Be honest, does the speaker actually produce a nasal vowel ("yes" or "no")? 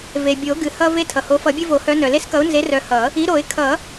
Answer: no